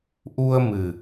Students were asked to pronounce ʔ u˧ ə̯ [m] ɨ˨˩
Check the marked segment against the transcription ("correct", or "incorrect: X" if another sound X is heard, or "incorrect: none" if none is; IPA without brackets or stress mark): correct